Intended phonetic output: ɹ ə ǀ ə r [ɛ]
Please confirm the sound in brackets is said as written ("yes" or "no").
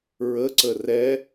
yes